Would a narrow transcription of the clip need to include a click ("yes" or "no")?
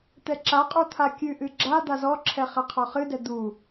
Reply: yes